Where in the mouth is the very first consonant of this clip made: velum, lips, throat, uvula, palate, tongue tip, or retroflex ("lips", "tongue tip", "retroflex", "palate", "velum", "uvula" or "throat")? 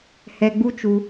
throat